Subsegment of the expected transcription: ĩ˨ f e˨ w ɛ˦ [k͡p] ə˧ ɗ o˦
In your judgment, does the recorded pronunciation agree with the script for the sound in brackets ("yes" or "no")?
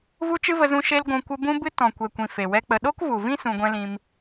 yes